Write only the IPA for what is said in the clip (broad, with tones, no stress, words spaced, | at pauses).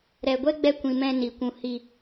ɾɛ˨ɡʷɛ˦ɡ͡bɛ˧ kʷĩ˨mɛ̃˧ ni˨kʷũ˧ hi˨